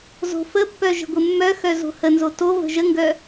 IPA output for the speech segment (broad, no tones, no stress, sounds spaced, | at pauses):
z o̤ f ə pː œ ʒ ə̤ ɡʷ ɘ mː œ x œ z o̤ h ə n z o t o v ə̤ ʒ ə ŋ ɡ œ